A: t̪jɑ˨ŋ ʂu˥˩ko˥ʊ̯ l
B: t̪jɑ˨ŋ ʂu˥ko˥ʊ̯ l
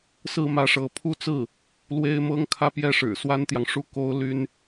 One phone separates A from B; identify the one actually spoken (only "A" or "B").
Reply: B